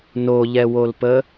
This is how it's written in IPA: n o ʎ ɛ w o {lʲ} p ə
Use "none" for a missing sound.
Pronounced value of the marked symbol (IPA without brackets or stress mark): l